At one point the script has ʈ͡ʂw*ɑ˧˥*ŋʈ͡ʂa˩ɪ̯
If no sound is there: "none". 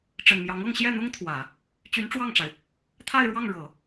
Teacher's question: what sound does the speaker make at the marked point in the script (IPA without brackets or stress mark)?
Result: ɑ˥˩